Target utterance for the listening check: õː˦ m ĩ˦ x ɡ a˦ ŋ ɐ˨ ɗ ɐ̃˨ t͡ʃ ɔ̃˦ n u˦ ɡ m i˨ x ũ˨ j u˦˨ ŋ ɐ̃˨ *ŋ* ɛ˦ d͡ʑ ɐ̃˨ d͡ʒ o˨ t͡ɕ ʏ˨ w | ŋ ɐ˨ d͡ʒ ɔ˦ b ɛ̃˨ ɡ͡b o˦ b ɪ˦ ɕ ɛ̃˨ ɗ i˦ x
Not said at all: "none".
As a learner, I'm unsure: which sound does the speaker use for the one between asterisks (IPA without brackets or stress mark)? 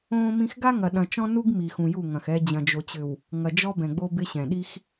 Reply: x